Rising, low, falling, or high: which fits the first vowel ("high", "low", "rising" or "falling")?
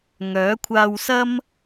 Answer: rising